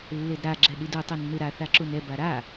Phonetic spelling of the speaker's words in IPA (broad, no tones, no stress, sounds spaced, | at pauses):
lː e d ɾ a ɡ͡ǁ ɛ ɗ i d u tˤ o nː ɯ ɾ a θ a ǁ u n ɛ b a ɾ a